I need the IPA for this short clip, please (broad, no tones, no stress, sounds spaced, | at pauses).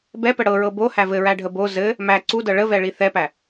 b ɛ p ə ɽ ɤ ɹ ɤ b o h æ v ɘ ɹ æ ɖʱ ə b o z ɘ | m æ ǀ u d ɤ ɭ ə v ɛ ɭ i θ ɛ p æ